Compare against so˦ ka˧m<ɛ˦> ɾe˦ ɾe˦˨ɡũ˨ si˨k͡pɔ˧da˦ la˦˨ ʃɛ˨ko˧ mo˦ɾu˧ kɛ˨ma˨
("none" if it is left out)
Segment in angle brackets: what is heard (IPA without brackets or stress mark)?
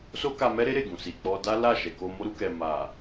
ɛ˦